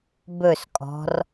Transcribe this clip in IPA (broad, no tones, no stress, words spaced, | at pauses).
bɵskʼɔ̤r